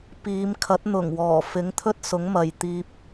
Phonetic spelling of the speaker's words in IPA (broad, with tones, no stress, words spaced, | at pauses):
piː˨˧mkʰɐ˨˥t̚ n̪ʊ˨˩ŋwɔː˨˩ fɪ˨˥ŋt̪ʰɵ˥t̚sʊ˨˥ŋmɐ˨j t̪iː˧p̚